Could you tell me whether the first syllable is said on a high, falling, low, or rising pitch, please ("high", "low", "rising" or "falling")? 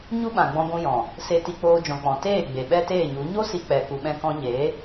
high